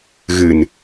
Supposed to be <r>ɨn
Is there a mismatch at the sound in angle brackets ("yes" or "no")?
yes